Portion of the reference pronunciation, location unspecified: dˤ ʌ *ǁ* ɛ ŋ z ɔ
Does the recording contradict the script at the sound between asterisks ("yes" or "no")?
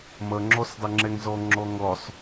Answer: yes